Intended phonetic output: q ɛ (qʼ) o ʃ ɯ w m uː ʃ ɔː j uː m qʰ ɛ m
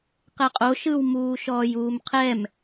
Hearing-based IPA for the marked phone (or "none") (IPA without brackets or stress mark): qʼ